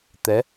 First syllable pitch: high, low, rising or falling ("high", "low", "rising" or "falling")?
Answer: rising